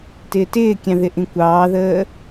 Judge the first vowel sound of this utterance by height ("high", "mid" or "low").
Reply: high